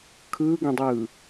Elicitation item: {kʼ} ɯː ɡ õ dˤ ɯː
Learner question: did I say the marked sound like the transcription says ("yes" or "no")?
no